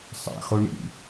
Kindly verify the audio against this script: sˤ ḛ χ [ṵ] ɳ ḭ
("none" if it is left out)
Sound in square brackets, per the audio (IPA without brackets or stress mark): u